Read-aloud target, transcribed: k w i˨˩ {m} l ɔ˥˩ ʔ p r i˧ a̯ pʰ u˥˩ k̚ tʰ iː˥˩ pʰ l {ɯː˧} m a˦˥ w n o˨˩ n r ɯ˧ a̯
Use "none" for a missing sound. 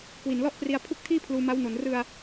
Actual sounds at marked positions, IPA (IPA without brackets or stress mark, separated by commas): n, uː˧